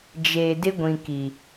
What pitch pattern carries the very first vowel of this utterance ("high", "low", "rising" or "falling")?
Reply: low